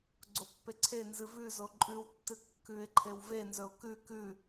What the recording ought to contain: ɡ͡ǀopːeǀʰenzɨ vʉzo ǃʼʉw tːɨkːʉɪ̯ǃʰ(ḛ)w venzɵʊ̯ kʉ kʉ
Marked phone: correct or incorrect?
incorrect